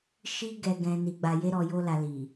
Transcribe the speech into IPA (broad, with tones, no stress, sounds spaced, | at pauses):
ʃ i˦ ɡ ɛ˧ ɡ ɛ̃˧ n i˧ ɡ͡b a˧ j e˦ ɾ ɔ˧ j o˦ l a˧ l i˨